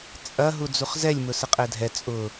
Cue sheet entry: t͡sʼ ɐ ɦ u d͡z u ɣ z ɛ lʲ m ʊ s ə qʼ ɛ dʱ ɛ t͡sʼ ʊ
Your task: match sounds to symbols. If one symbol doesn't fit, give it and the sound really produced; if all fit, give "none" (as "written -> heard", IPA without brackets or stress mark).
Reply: ɣ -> χ